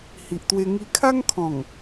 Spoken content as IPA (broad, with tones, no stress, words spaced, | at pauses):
hi˨ʔt̪we˧ ŋi˧kʰa˦ŋkʰɔ̃˨˩ŋ